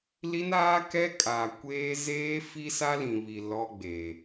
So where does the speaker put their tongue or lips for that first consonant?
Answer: tongue tip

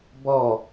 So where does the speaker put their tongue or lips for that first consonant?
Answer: lips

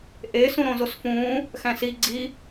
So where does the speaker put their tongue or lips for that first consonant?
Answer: throat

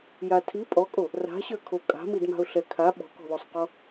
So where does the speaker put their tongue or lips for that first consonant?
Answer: palate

